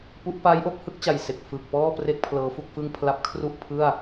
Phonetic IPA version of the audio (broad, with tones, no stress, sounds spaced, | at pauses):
p u˦˥ ʔ p aː˦˥ j ʔ o˥˩ k̚ h ɯ˦˥ k̚ t͡ɕ a˨˩ j s e˨˩ k̚ f ɯ˨˩ k̚ p ɔː˥˩ p r e˥˩ k̚ pʰ l ɤː˦˥ f u˥˩ k̚ f ɯ˥˩ ŋ pʰ l a˦˥ p̚ kʰ r u˥˩ ʔ pʰ ɯ˥˩ a̯